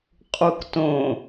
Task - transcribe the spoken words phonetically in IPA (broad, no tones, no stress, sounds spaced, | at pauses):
qʼ u k t õ